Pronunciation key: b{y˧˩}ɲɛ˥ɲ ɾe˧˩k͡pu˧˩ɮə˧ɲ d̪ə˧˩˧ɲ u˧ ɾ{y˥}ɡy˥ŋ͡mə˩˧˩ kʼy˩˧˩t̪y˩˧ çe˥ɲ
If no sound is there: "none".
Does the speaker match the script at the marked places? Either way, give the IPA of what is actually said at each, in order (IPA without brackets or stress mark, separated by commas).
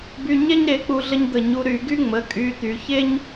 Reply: y˧, y˧˩˧